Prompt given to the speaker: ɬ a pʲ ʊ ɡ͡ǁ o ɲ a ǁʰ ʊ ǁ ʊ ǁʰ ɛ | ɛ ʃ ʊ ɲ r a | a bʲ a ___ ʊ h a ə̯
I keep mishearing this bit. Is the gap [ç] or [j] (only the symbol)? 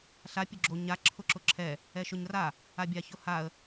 ç